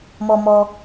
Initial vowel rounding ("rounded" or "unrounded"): rounded